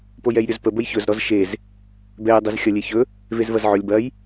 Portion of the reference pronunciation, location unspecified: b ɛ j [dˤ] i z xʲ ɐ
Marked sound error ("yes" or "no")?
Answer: no